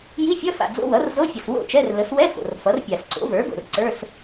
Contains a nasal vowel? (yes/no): no